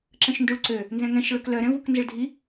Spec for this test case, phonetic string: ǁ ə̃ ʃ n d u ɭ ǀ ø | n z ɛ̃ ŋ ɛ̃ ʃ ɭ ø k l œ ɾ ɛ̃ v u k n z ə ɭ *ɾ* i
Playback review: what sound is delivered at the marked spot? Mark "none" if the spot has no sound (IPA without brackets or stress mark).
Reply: dʱ